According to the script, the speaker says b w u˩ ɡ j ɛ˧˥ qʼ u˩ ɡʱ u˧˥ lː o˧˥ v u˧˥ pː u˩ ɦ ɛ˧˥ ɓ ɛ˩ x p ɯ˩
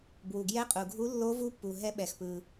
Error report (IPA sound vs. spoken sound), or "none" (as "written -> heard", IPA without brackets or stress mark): none